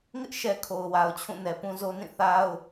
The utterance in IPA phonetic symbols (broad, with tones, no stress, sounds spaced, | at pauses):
ŋ ɪ˦ ʔ ʃ ɛ˨ kʰ o˨ ʊ̯ w a˨ ʊ̯ t͡ɕʰ ũ˦˨ n ɛ˨ p ũ˦ z o˦ n ĩ˦˨ θ a˦ ʊ̯